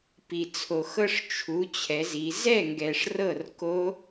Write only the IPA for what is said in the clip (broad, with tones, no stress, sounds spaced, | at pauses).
p i˩ t͡sʰ o˩ x ɤ˥˧ ʂ t͡ʃʰ u˩˧ t͡ɕʰ ɛ˩˧ z i˩˧ z ɛ˥˩ ŋ ɡ ɛ˩ ʂ r ɤ˥˩ r k o˦˥